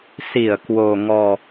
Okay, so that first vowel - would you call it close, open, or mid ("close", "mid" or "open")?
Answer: close